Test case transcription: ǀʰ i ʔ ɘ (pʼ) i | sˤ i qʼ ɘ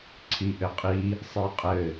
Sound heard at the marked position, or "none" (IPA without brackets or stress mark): qʼ